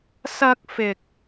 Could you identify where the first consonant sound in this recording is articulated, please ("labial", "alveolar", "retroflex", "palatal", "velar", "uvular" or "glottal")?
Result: alveolar